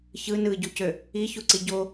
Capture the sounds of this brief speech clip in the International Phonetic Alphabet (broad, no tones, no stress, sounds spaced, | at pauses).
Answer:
ç ɯ n ɯ ɟ u c ø | i ç u ǀ i ɟ o